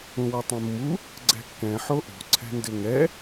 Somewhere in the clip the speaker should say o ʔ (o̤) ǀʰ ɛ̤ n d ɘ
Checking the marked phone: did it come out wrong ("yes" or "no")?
no